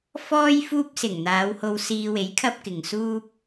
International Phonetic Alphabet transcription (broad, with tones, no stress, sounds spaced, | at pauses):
f ɔː˥ j f uː˥ p̚ s ɪ˨˩ ŋ n̪ aː˨˧ w h o˧ w s iː˧ w e˨˥ j kʰ ɐ˥ p̚ k ɪ˨ ŋ s uː˥ p̚